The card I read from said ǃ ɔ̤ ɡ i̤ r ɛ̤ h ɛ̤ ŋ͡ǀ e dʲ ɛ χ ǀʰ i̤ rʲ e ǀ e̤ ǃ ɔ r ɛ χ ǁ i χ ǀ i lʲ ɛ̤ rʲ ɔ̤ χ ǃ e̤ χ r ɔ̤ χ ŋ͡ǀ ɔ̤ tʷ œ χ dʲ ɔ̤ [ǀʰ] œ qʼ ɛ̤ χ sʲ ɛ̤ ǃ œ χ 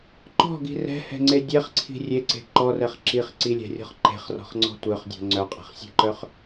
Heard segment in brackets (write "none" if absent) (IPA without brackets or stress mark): ŋ͡ǀ